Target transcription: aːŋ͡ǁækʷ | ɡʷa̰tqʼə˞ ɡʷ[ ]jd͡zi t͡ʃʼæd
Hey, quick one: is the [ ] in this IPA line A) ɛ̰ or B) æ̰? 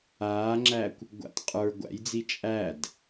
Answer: B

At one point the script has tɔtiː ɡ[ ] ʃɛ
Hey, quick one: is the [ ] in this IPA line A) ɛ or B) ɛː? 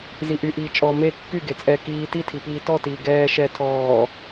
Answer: B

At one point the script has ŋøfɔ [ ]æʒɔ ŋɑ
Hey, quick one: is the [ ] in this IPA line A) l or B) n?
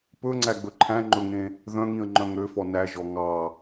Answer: B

